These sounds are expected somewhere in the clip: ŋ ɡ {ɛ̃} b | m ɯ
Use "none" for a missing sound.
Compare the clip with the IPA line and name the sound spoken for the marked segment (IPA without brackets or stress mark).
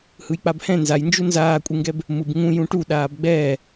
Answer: ɛ